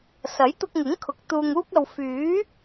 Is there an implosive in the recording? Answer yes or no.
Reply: no